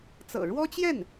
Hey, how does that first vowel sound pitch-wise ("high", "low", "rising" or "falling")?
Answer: low